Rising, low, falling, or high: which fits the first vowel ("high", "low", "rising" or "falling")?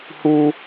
high